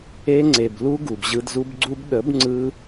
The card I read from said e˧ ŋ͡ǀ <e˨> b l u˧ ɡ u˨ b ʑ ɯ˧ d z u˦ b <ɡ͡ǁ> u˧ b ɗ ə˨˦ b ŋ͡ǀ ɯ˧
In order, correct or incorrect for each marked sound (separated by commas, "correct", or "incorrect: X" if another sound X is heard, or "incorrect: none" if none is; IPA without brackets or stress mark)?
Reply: correct, incorrect: ɡ͡ǀ